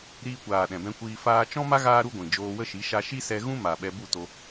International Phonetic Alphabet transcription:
ɾ iː˧ kʷ aː˨ ɗ ɛ̃˨ b ɛ̃˦ kʷ iː˦ f aː˧ t͡ʃ ɔ̃˦ m a˦ ɣ aː˦ ɾ u˦ ɡʷ ĩ˨ d͡ʒ oː˧ w ə˦ ʃ i˨˦ ʃ a˧ ʃ i˦ s ɛ˧ ɣ ũ˦ m a˨ ɓ ɛ˧ b u˦˨ t o˧

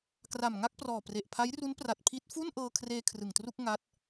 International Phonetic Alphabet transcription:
k r a˨˩ m ŋ a˥˩ k̚ p r ɔː˨˩ p r e˨˩ ʔ pʰ a˦˥ j r u˦˥ n p r a˨˩ t̚ pʰ i˦˥ t̚ f u˥˩ n ʔ ɤː˧ kʰ r eː˧ kʰ r ɯ˨˩ ŋ t r u˥˩ k̚ ŋ a˦˥ t̚

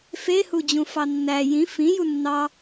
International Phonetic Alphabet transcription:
f e h u d͡ʑ ũ f ɑ nː æ j ĩ f ĩ j u nː ɑ

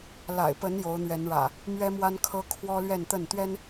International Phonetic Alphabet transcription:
l a̰˨˩ ɪ̯ p ə˨˦ n j o˨˦ ʊ̯ n̪ ɥ ɛ˨˦ n ɻ ä̰˨˩ | m ɥ ɛ˦ m w a˦ n kʰ ɤ˦ kʰ w ɔ˦ l ɥ ɛ˥˨ n t̪ ə˥˨ n t̪ ɥ ɛ˦ n

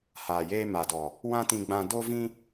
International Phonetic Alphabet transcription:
h aː˨ j eː˧ m a˨ d ɔ˨ | w ã˦ t ĩ˧ ɡ͡b ã˧ d o˧ v ĩ˧

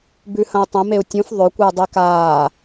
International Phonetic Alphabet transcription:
b ʉ h ɐ̃ u̯ tˤ ɐ̃ m e u̯ tʲ ũ f ðˤ ɵ kʷ ɨː dˤ i k aː

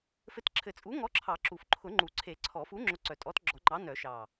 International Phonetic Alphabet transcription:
f ɘ˨˥ t ǁʰ ɘ˨˩˦ t͡sʼ u˨˥ ŋ ɔ˨˥ ǁʰ ɑ˨˩˦ ǁ u˨˩ f ǃʰ ʊ˨˩˦ ŋ͡ǃ u˨˩ ǀʰ e˨˩˦ ǀʰ ɔ˨˩˦ f u˨˥ ŋ͡ǁ ʊ˨˥ ǀ œ˨˩ tʼ ɔ˨˥ t ɡ͡ǁ ɔ˨˩˦ ŋ͡ǃ ɑ˨˥ n œ˨˩˦ ʃ ɑ˨˩

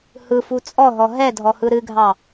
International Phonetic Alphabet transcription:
h ɯ f u t͡sʼ ɔ ɦ ɔ ɦ ɛ dʱ ɔ h ɯ ɾ ɨ ɡʱ ɑ

